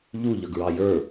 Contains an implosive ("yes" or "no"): no